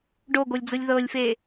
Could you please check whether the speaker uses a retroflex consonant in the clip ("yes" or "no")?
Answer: yes